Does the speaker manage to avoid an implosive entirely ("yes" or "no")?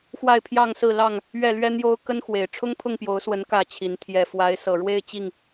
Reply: yes